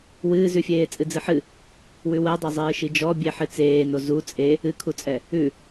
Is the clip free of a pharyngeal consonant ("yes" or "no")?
no